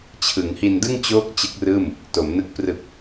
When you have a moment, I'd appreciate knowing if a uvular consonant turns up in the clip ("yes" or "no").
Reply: no